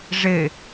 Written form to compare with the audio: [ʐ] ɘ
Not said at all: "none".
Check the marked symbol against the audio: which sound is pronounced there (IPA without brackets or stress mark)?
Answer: ʐ